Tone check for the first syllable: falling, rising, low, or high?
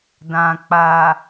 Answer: low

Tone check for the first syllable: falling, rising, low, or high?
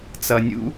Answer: low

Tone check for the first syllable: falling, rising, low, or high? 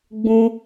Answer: high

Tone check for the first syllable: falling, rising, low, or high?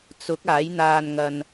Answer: rising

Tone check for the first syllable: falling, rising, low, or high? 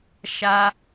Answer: high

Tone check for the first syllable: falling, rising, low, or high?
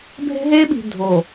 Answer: high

